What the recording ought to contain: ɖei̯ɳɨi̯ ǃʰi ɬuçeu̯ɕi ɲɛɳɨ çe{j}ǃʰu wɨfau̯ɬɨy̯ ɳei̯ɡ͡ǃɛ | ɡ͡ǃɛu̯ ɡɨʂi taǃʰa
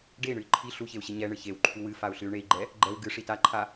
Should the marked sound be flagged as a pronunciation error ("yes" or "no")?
yes